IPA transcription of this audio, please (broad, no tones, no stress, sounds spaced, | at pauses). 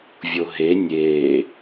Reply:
vʲ o ɦ e nʲ eː